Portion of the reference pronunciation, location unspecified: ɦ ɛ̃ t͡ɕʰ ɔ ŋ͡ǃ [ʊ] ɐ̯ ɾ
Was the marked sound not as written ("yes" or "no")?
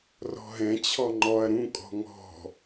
yes